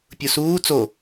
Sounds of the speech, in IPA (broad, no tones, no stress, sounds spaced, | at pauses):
pʲ u s uː t͡s o